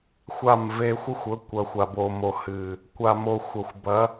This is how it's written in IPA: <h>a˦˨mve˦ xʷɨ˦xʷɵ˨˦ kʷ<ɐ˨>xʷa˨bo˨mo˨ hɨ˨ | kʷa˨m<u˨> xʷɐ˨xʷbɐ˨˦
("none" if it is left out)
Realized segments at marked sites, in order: xʷ, ɐ˨, o˨

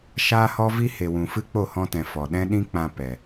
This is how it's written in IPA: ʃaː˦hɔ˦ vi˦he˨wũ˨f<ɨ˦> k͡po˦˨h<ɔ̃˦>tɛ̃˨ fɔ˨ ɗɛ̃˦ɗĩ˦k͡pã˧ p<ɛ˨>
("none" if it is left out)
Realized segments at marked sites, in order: ɨ˦, ɔ̃˧, ɛ˨

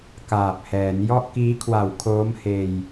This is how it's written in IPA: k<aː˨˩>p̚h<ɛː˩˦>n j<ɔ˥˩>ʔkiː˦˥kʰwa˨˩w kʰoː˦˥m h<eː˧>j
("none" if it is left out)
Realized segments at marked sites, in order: aː˨˩, ɛː˩˦, ɔ˥˩, eː˧

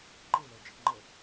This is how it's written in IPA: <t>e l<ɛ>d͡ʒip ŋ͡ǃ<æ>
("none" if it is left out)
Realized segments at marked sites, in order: ǃ, ɛ, ə

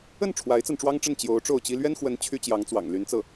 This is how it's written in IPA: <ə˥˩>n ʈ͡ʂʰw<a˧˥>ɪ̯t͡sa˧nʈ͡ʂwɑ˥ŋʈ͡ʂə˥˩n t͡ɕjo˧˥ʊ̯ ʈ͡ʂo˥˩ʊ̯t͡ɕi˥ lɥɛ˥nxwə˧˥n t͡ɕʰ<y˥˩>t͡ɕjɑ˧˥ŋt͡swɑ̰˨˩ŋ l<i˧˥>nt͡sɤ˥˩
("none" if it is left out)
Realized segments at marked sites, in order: ə˥˩, a˧˥, y˥, y˧˥

